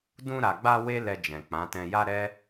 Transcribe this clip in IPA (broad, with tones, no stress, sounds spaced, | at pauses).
d ũ˧ ɾ a˨ ɡ͡b a˧ w e˦ l ɛ˧ d͡ʒ ɛ̃˨ k͡p ã˨˦ t ɛ̃˧ j a˦ ɾ ɛ˦